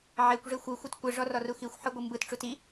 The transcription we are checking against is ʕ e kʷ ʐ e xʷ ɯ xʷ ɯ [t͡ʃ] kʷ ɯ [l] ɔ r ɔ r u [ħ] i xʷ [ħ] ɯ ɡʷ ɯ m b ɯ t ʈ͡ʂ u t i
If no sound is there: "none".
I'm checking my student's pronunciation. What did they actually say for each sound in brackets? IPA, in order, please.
t, ʐ, x, ħ

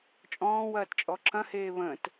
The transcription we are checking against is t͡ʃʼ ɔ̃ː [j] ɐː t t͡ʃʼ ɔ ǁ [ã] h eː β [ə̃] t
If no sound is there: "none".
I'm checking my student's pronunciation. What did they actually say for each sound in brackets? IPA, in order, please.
w, ɐ̃, ə̃

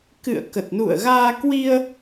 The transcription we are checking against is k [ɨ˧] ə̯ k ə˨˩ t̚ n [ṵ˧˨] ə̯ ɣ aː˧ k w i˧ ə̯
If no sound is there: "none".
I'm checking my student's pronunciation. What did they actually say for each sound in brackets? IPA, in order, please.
ɨ̰˧˨, ṵ˧˨

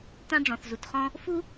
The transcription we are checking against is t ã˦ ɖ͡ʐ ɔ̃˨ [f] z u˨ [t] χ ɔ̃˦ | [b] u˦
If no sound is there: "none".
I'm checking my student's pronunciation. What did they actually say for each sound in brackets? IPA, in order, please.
θ, t, f

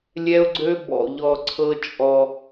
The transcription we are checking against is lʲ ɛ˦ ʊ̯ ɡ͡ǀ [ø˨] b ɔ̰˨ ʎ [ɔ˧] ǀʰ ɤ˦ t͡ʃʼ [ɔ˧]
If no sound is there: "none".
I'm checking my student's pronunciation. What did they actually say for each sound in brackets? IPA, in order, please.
ø˦, ɔ˧, ɔ˧

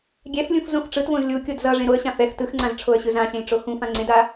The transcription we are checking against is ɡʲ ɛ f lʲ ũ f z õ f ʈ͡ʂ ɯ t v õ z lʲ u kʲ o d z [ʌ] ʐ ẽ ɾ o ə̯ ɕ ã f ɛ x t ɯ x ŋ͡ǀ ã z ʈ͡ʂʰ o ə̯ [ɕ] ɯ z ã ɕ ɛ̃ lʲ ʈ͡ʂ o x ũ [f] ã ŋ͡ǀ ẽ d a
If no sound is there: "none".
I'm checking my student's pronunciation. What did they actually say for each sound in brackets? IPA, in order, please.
ʌ, ɕ, f

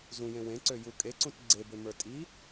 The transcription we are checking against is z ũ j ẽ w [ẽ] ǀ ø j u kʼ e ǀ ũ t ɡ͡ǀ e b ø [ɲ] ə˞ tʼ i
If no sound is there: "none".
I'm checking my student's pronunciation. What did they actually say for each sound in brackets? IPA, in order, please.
ẽ, m

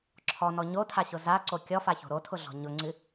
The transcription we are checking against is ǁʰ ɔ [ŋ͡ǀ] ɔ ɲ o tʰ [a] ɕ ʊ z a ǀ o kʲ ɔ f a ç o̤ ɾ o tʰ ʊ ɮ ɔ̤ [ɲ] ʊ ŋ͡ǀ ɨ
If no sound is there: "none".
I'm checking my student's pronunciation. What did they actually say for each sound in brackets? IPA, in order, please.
n, a, ɲ

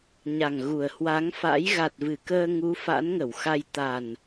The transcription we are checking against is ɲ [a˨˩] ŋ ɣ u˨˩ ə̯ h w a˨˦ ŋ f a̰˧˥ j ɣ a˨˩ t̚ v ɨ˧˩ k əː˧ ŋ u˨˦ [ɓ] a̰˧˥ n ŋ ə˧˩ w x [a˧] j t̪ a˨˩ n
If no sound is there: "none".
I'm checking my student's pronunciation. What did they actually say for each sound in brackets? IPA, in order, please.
a˨˩, f, a˧

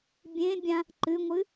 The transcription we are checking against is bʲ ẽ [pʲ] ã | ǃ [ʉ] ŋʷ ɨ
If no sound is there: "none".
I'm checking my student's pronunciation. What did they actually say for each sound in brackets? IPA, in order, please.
bʲ, ɨ

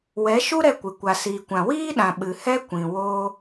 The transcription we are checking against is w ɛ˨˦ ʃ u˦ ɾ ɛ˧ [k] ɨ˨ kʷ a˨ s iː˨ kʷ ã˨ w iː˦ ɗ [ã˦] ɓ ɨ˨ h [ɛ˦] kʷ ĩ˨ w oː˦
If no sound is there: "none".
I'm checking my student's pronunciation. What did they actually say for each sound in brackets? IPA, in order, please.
kʷ, ã˨, ɛ˦

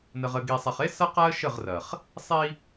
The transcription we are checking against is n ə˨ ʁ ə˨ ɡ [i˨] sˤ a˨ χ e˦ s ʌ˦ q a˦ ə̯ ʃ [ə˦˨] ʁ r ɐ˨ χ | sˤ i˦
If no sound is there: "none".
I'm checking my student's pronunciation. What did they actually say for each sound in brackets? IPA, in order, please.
i˨, ə˦˨

